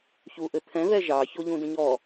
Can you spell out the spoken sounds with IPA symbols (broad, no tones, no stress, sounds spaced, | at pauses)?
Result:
ç u ʔ ɘ t̪ʰ ɛ̃ ð ɛ ʒ ɑ ç o ʎ ũ d ə̃ ɲ ɔ